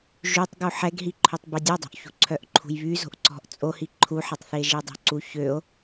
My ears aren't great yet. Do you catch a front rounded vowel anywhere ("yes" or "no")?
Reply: yes